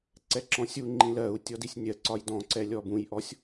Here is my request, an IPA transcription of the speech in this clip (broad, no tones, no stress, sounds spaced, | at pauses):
ǀ ɛ ǁ ɔ̃ sʲ u ŋ͡ǃ ĩ l ɜ u̯ tʲ ɔ d i sʲ nʲ ɜ ǀ ɒ j d ɔ̃ ǀ ɛ lʲ ɔ b ũ j ʔ ɔ sʲ